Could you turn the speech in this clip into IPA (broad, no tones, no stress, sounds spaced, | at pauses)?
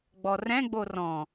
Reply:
ɡ͡b ɔ r ɛ̃ ɡ͡b o r ɔ̃